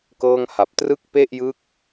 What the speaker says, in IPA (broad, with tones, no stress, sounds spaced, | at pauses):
k ɤː˥˩ ŋ h a˨˩ p̚ t r ɯ˥˩ k̚ p e˥˩ ʔ j ɯ˦˥ k̚